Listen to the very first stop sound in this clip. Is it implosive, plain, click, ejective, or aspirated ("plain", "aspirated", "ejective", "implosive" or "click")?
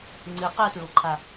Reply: click